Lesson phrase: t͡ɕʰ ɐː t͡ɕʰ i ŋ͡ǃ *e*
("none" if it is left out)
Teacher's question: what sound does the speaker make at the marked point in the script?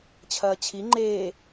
eː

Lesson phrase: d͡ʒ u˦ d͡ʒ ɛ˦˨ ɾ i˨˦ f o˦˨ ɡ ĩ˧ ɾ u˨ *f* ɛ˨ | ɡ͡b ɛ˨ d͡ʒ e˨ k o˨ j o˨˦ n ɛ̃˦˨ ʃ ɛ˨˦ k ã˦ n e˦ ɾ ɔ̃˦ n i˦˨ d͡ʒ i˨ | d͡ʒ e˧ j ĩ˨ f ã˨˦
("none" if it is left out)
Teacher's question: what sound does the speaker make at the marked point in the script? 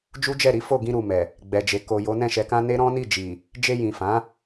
m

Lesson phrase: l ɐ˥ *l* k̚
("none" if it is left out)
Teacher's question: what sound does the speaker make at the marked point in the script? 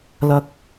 none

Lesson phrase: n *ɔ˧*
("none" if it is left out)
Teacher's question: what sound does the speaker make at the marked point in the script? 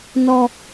ɔ˧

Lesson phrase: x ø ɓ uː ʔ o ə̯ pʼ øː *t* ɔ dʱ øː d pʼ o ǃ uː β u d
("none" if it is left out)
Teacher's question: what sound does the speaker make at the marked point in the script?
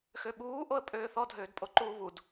θ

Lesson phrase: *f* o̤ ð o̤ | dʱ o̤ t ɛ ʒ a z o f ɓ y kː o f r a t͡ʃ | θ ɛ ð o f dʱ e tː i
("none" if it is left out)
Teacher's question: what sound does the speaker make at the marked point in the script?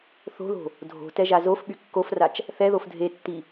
θ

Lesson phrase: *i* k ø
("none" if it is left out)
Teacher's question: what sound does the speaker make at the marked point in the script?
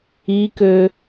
i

